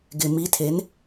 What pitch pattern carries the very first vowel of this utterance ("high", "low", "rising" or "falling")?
low